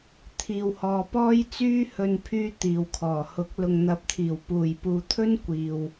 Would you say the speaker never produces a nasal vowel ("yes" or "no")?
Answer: yes